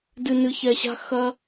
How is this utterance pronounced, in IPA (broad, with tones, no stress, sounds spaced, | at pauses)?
d ɨ˧ n ɨ˧ ç ɛ˧ ɕ a̤˦ x ɐ˦